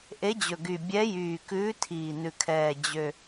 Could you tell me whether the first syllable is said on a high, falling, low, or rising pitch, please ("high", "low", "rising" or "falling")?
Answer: rising